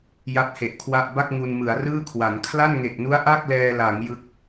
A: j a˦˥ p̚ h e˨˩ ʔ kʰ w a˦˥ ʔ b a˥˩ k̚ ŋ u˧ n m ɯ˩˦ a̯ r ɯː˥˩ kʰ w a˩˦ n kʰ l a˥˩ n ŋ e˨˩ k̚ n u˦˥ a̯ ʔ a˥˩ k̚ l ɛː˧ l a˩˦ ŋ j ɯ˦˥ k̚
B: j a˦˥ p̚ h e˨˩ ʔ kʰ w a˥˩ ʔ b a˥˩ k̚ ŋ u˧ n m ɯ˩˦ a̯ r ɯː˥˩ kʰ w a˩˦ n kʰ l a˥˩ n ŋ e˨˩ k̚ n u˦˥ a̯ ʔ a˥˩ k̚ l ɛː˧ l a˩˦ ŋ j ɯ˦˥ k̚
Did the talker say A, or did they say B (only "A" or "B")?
B